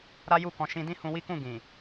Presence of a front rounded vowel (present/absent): absent